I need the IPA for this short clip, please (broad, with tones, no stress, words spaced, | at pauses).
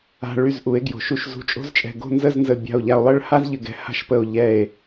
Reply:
a̤˧ ɭy˧˩zʔu˩˧e̯ɡjo̤˩˧ʃ u˧˩ʃzṳ˧˩t͡ʃʼo̤˥zt͡ʃʼɛ̤˧˩ ɡo̤˥˧nzə˥˧znzə˧˩ bʲa̤˧˩o̯ʎa˧o̯lˠə˥˧ɭha˥z ʎɘ˧ɡɛ̤˧ha̤˥˧ʃpə˧˩o̯ ʎɛ˧˩e̯